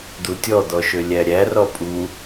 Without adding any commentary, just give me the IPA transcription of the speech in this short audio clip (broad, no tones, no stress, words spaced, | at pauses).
d̪utʲɔd̪ɔʃø lʲæɾʲæ rɔpʼu